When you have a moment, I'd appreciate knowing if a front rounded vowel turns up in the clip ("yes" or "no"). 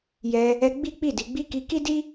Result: no